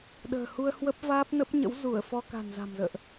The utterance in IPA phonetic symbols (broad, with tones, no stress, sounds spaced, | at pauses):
ɗ ə̤ː˨˩ h u˧ ə̯ h w ə˦˥ p̚ v aː˦˥ p̚ n ə˦˥ p̚ ɲ ə̰˧˥ w z u˧˩ ə̯ f ɔ˧ k a̤˨˩ n z a̤˨˩ m z ə̰ː˧˨ ʔ